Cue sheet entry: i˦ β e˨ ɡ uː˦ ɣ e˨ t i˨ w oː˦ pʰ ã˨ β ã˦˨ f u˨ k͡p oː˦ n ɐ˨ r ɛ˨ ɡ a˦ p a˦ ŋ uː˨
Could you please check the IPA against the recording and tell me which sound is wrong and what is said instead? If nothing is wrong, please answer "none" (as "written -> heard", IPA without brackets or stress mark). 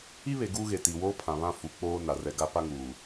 ɐ˨ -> a˨